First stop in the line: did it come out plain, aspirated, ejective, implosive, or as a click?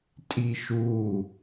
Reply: ejective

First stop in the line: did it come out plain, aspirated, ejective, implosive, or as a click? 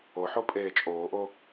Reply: ejective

